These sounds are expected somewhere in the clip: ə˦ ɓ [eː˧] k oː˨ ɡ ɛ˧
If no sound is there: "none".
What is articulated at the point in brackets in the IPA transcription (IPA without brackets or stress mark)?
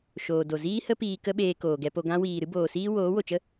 eː˧